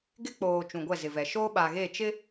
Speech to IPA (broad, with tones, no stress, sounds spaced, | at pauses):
ɡ ɪ˦ k͡p oː˨ t͡ʃ ũ˨ ɡʷ ɛ˦˨ z ɪ˨ v ɛ˨ ʃ o˦ ɓ a˨ ɣ e˦˨ t͡ʃ ɪ˦